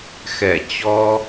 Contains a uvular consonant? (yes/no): no